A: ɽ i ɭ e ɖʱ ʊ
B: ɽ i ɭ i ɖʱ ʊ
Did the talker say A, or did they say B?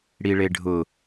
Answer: A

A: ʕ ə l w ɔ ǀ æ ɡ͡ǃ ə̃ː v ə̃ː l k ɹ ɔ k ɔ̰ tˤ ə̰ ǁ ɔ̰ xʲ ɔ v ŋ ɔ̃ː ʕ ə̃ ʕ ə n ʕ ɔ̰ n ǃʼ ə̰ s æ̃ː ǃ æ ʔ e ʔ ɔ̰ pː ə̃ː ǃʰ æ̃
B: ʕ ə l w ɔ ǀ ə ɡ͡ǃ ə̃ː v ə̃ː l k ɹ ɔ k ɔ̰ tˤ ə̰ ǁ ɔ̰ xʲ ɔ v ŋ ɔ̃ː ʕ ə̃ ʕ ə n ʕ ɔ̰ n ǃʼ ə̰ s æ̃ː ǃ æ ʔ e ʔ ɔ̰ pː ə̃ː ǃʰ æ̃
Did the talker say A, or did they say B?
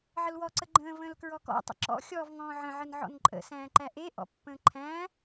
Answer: B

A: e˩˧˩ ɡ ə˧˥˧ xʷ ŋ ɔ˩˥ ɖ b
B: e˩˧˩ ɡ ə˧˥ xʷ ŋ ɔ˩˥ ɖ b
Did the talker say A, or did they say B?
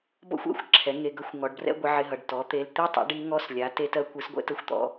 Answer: A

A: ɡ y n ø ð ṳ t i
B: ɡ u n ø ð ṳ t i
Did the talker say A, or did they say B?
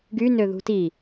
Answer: A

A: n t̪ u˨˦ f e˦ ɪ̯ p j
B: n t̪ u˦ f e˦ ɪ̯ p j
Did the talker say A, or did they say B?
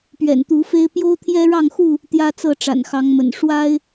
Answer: A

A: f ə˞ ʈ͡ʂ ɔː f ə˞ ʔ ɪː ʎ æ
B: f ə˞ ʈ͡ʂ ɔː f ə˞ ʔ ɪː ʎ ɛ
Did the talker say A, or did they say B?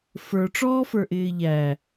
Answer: A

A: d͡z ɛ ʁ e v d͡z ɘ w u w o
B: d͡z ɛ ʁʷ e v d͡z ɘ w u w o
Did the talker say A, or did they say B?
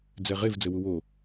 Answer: A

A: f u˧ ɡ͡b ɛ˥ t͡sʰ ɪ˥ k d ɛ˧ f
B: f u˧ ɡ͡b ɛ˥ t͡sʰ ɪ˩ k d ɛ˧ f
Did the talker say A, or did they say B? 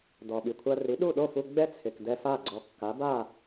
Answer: B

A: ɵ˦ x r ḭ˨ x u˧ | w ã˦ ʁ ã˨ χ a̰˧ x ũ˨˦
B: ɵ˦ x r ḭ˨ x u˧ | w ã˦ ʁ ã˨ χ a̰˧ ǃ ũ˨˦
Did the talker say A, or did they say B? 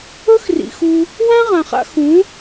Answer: A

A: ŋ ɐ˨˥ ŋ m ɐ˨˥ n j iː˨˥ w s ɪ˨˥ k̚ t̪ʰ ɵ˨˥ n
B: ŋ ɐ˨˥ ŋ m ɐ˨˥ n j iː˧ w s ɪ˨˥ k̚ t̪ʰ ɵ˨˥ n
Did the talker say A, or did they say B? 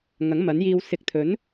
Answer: B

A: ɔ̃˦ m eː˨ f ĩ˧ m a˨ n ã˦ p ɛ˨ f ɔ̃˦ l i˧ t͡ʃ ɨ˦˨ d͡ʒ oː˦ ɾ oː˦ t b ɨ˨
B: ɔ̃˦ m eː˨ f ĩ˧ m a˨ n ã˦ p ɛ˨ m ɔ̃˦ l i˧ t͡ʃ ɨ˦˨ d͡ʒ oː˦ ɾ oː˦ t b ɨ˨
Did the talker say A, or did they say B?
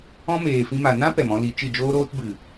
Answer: B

